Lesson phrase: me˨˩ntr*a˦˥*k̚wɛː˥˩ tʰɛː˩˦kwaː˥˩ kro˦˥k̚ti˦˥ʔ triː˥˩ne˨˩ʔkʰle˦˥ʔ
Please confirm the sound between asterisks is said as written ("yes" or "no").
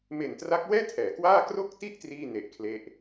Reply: yes